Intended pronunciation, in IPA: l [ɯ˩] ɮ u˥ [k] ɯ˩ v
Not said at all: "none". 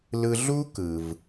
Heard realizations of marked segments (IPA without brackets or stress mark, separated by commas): ɯ˧, k